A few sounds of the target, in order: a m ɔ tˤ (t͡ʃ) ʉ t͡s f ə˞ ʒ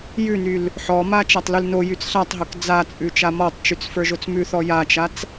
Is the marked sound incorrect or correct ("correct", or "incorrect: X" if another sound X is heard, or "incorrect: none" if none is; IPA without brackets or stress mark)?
correct